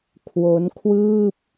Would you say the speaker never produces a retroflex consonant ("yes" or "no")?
yes